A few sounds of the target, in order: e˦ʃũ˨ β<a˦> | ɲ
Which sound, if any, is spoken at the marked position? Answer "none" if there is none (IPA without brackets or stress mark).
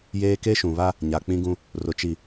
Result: a˦